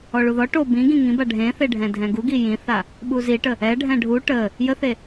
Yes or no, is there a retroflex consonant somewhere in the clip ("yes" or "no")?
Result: yes